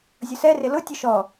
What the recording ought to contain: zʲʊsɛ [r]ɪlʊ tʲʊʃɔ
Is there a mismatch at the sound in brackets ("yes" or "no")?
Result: no